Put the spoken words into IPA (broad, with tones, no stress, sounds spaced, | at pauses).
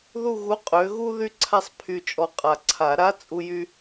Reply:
ð u˦˨ ɣ u˨˥ qʼ ø˨˥ ɣ u˥ ð y˥ ǀʰ a˥ sˤ pʰ y˦˨ t͡ʃʼ ɔ˦˨ qʼ a˨ ǀʰ a˨˩˦ ɾ a˧˥˧ t͡sʼ u˥ j y˥